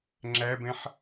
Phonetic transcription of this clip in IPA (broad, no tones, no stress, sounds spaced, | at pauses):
ŋ͡ǁ æ b ɛ̃ ħ